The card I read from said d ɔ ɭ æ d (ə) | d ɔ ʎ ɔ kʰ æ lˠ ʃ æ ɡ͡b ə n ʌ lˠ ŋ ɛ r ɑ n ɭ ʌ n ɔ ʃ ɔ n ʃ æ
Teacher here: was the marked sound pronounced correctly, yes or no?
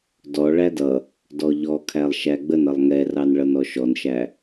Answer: no